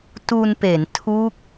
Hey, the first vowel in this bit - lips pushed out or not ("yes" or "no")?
yes